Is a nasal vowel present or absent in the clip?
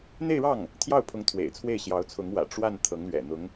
absent